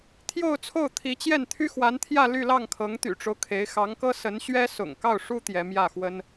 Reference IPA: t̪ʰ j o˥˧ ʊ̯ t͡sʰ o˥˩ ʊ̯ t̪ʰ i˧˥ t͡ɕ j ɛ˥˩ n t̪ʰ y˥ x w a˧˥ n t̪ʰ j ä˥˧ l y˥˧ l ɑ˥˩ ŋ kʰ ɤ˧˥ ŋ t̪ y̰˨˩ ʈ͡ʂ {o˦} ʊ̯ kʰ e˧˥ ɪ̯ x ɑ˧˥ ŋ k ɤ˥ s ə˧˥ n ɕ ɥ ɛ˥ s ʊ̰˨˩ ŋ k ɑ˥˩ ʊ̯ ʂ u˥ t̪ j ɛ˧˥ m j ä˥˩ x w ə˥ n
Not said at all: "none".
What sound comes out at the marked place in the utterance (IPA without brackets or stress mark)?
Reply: o˦